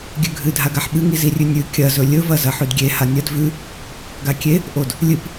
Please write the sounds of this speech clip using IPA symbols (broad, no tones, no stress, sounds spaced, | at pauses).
ɡʲ ʉ ɡʱ ɨ dʱ a ɡ a ħ ɓ ɨ ŋ i z i rʲ ʉ nʲ ʉ kʲ ɐ z ɵ lʲ ɵ v ɐ z ɐ ħ ʉ d ɡʲ e h a nʲ ɐ d v ʉ | ɡ a kʲ e | ʔ o d | lʲ ɨ p